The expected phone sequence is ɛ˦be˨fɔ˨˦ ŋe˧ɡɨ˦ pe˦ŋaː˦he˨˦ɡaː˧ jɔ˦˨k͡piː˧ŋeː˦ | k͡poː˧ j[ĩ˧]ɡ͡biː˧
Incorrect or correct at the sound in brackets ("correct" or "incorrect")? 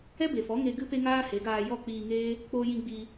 correct